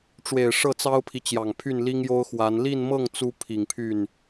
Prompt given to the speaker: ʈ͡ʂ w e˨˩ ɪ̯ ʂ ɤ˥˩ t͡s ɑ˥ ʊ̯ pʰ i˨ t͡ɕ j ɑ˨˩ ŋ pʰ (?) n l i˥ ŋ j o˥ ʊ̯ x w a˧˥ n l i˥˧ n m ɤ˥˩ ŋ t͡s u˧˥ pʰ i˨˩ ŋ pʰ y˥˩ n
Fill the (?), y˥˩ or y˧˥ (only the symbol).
y˥˩